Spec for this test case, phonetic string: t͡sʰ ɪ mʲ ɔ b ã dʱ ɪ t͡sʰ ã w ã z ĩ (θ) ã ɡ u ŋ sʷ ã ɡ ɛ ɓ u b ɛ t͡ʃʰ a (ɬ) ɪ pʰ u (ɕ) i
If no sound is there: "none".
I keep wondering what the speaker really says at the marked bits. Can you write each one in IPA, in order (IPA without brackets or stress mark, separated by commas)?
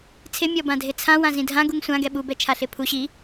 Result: dʱ, ɬ, ɕ